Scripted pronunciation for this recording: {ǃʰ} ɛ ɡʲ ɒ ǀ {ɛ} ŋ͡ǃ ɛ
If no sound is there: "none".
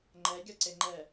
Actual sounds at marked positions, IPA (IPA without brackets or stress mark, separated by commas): ŋ͡ǃ, e